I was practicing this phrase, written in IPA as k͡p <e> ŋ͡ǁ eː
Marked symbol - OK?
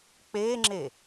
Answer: no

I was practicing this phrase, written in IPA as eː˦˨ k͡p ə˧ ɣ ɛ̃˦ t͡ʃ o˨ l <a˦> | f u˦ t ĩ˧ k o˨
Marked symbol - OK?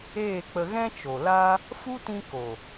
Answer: yes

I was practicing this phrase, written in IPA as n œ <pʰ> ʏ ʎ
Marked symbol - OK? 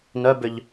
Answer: no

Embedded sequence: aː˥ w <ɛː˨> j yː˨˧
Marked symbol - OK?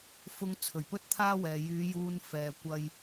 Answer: yes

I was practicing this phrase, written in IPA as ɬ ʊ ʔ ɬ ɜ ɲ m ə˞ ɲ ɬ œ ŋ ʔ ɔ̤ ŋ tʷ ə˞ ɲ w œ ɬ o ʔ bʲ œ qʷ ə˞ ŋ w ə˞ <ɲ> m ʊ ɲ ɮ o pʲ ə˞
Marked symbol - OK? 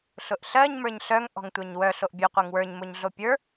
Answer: yes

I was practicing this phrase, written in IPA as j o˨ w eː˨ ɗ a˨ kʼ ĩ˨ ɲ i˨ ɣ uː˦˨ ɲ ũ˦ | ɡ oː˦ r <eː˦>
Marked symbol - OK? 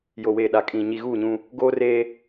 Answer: yes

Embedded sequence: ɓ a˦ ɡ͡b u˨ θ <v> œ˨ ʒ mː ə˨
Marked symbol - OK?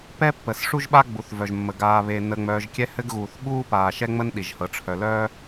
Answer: yes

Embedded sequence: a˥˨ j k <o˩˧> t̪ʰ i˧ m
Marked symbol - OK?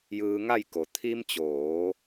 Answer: yes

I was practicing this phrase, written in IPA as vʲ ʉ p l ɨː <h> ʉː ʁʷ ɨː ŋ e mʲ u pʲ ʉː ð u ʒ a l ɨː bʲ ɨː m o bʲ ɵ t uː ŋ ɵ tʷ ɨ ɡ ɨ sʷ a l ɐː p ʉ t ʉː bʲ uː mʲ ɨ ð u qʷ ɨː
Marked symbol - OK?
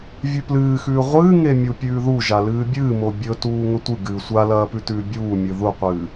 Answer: no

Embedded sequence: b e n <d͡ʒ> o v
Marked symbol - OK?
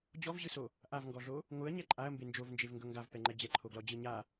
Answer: yes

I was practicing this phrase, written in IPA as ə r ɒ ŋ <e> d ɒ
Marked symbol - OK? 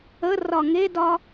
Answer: yes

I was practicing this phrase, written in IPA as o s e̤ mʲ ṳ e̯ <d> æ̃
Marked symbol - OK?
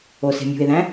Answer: no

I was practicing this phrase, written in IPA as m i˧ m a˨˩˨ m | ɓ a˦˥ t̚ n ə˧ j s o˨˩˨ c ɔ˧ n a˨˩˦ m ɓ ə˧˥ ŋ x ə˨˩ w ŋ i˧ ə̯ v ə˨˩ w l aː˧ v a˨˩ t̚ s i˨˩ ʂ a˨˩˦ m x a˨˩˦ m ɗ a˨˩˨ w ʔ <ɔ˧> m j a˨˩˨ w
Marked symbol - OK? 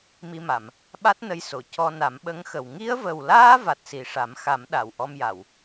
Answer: yes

